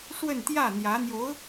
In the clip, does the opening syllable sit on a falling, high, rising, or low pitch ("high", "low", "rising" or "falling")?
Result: falling